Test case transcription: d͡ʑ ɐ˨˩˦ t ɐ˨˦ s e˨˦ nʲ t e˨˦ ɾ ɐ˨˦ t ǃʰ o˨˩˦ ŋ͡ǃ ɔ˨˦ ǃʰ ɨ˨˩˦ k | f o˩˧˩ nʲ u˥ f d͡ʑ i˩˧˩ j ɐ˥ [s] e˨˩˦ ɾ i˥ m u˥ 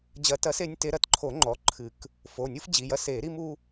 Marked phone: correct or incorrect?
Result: correct